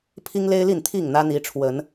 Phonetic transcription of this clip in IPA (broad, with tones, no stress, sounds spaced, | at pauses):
pʰ i˦ ŋ l e˦ ɪ̯ l i˥˨ n t̪ʰ i˥˨ ŋ n̪ ä˦ n̪ i˨˦ ʈ͡ʂʰ w ə˨˦ n